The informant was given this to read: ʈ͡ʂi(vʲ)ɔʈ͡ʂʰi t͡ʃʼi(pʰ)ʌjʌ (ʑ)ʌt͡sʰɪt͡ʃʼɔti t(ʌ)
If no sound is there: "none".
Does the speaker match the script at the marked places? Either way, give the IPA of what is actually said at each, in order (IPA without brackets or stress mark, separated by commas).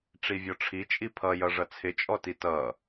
vʲ, pʰ, ʐ, ʌ